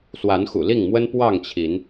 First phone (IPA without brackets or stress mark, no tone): s